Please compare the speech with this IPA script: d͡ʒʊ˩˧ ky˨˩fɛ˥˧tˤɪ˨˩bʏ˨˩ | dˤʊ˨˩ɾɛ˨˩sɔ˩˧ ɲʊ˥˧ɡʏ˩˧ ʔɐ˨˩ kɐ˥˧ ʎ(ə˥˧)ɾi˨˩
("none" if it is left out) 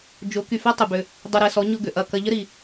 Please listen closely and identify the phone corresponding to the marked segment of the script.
ə˥˧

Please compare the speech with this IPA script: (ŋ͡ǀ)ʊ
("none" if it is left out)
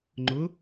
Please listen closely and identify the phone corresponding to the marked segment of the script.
ŋ͡ǃ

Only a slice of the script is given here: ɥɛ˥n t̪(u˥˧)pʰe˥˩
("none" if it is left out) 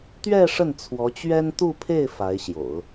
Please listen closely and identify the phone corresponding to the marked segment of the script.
u˥˧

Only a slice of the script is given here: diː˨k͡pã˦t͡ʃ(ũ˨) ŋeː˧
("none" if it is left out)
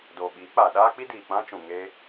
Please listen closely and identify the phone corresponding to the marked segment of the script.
ũ˨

